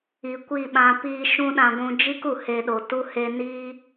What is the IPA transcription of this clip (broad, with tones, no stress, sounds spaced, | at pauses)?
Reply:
i˨ kʷ i˦˨ ɓ ã˧ p iː˦ ʃ ũ˦ ɗ ã˧ ɡʷ ũ˧ d͡ʒ i˦ k u˨ h e˧ ɗ o˨ t u˦ h e˦ n iː˦